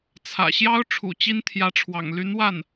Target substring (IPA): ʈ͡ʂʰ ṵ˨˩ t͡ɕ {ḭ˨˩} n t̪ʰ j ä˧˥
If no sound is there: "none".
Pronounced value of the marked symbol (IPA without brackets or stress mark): i˥